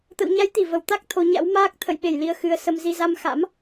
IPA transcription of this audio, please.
t̪ə̰˧˨wɲa˨˦jt̪i˧˩ və˧˩wt̪a˦˥k̚ t̪ʰo˨˦ɲa̰˧˥wmaː˦˥k̚ t̪ʰə̰˧˨jɓe˧˩jli˨˩ə̯xɨ˨˩ə̯ sə˧mzi˧ za˧mxa̰˧˥m

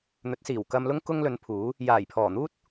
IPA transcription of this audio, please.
n̪ɵ˨˥t̚siː˨˩w kɐ˧mlʊ˥ŋ kʊ˥ŋlɵ˨˧npʰuː˨˥ | jaː˨˩jpʰɔː˨˩n̪uː˥t̚

